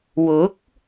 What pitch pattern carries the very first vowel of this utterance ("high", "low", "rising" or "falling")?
rising